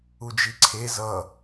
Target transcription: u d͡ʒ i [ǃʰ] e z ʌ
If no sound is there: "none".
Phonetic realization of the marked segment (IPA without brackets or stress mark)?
ǀʰ